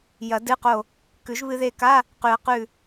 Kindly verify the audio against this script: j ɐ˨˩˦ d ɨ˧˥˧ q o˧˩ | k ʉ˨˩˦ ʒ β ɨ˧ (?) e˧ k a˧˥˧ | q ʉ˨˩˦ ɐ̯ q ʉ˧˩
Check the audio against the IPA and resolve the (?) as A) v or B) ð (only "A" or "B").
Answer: B